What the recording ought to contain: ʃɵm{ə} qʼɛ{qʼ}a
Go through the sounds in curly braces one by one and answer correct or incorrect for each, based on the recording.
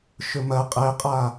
incorrect, correct

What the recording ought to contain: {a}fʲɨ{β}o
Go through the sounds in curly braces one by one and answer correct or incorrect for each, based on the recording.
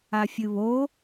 correct, correct

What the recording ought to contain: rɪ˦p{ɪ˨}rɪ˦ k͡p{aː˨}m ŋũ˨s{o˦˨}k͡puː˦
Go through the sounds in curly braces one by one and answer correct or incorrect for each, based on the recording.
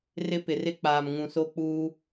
correct, correct, incorrect

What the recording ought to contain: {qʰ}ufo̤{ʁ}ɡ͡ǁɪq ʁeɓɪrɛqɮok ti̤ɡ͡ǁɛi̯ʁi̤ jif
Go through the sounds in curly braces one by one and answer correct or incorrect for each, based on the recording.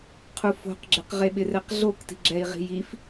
correct, incorrect

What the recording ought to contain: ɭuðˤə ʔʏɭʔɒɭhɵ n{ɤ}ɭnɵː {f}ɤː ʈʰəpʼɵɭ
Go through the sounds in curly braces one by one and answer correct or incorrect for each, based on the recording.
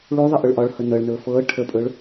correct, correct

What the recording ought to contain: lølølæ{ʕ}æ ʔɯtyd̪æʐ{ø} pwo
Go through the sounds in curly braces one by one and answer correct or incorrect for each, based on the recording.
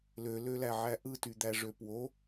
correct, correct

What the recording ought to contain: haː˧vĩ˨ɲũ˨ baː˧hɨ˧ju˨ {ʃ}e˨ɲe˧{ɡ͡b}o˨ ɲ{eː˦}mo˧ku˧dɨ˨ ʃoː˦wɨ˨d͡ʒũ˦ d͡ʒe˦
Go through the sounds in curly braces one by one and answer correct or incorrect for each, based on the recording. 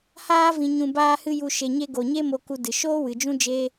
correct, incorrect, incorrect

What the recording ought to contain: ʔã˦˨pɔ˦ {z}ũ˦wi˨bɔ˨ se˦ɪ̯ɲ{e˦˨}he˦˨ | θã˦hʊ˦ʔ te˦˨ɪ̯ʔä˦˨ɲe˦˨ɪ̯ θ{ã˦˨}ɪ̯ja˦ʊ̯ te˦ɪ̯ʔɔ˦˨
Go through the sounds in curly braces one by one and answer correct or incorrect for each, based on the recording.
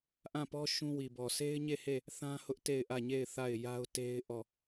incorrect, correct, incorrect

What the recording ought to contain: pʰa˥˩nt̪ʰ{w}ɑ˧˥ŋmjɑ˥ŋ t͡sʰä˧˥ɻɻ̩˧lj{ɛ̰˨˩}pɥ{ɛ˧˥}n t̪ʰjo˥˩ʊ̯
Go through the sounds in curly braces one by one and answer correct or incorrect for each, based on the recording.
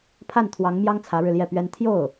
correct, incorrect, incorrect

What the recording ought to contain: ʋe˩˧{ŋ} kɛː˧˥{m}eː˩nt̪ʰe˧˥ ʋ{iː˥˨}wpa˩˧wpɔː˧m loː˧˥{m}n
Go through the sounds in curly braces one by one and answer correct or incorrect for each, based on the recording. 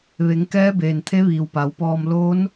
correct, incorrect, incorrect, incorrect

